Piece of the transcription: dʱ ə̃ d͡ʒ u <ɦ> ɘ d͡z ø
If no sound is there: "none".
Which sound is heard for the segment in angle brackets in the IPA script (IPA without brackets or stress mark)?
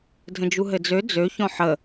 ɦ